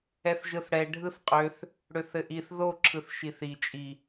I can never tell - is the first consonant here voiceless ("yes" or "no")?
yes